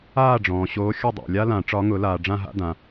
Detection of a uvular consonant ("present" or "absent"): absent